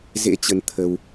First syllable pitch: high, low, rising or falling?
rising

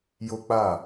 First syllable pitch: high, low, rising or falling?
high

